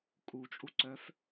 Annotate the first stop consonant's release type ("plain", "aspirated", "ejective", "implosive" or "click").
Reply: ejective